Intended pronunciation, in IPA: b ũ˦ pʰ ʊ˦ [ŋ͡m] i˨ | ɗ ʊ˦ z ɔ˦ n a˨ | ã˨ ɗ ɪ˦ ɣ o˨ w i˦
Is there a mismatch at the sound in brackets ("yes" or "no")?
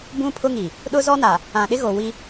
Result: yes